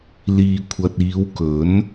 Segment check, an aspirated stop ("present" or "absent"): present